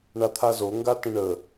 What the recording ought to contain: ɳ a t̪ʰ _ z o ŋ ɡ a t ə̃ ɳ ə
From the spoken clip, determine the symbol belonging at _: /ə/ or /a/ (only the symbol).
a